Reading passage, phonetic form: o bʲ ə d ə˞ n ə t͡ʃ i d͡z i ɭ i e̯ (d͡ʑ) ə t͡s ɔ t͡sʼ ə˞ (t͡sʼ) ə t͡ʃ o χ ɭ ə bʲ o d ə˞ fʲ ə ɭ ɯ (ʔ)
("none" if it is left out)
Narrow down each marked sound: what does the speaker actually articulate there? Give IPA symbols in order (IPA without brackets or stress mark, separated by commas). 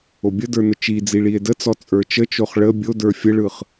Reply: d, t͡ʃ, χ